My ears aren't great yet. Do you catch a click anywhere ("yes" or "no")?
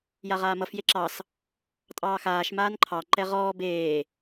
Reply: yes